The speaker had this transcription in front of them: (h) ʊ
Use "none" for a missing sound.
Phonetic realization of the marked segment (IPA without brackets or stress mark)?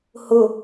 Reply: h